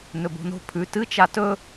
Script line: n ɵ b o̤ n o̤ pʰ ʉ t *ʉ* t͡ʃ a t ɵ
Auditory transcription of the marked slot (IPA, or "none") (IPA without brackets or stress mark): ɨ